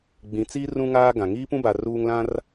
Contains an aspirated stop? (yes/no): no